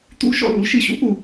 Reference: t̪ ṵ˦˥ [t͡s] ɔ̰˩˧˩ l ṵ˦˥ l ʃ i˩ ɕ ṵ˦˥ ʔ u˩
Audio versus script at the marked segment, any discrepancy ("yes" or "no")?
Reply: yes